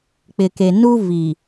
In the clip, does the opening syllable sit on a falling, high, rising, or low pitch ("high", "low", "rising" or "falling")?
low